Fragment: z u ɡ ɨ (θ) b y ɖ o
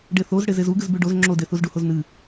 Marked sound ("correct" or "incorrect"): incorrect